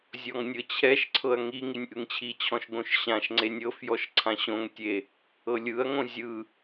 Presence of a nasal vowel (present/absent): present